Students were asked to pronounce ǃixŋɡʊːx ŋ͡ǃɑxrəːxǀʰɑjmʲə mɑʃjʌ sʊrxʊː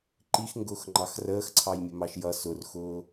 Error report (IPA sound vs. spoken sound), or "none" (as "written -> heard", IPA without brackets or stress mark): none